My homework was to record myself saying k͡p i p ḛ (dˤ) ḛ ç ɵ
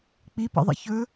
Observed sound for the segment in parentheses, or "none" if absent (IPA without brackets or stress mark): ðˤ